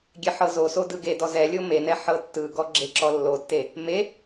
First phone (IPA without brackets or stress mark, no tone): ɡʲ